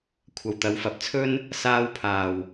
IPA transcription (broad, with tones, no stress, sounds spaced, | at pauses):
kʷʰ ɐ˨ w t̪ ɐ˨˧ w f ɐ˨˥ p̚ t͡sʰ ɵ˥ n | s aː˧ w pʰ aː˨ w